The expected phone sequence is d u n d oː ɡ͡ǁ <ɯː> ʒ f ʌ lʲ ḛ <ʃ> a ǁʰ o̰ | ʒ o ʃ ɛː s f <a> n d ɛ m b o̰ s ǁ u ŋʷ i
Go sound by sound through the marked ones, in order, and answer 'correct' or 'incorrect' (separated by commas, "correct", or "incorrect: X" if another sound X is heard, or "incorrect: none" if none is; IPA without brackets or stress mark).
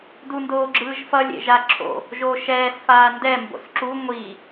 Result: correct, incorrect: ʒ, incorrect: aː